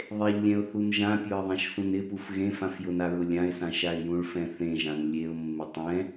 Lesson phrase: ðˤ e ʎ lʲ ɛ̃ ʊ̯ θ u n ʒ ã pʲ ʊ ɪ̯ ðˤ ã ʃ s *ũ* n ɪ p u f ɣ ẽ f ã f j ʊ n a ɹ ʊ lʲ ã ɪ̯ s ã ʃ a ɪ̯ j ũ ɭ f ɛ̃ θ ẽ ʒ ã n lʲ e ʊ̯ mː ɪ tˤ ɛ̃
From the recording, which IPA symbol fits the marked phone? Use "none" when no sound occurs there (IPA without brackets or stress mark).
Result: ũ